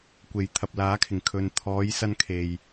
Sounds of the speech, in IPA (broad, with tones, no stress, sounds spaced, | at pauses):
kʷ e˨˩ j t̪ʰ ɐ˨ p̚ l aː˨˥ kʰ ɪ˨˩ ŋ kʰ ɵ˨ n t̪ʰ ɔː˨˧ j s ɐ˧ n kʰ e˨ j